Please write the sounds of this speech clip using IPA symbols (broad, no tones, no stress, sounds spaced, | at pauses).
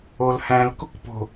o l h æ̃ l k u k p o̤